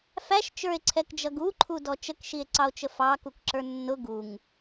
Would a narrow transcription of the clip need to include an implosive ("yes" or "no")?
no